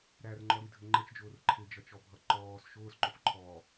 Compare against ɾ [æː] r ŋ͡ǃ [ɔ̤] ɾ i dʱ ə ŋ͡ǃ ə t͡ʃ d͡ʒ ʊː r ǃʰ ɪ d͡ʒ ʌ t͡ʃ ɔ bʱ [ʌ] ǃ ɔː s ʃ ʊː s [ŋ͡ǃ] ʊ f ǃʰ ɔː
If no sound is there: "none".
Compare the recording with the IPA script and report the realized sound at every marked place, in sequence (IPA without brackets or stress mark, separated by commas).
æ, ɔ, ʌ, ǃ